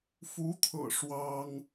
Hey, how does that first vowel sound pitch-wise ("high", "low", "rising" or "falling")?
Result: rising